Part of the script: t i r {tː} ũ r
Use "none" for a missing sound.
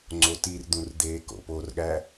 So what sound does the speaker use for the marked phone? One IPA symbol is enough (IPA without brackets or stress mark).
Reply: d̪